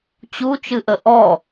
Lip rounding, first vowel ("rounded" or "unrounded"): rounded